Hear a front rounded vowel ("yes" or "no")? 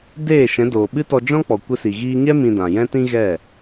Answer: no